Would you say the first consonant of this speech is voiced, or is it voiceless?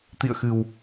voiceless